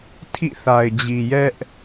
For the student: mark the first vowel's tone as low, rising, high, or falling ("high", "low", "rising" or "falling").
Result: falling